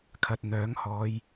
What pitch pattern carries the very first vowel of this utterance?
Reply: low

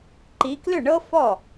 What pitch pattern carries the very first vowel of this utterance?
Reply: rising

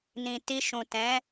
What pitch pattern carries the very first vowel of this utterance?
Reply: low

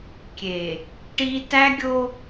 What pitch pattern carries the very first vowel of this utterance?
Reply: low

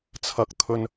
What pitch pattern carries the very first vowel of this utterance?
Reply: low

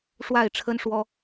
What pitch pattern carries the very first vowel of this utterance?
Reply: falling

